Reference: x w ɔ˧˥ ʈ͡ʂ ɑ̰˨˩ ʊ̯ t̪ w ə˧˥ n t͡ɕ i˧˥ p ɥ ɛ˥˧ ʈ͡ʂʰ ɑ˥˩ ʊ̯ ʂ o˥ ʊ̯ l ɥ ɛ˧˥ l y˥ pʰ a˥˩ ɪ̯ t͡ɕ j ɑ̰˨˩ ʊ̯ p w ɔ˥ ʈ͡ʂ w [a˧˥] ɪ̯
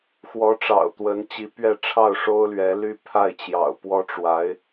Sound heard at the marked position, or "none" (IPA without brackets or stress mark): a˧˥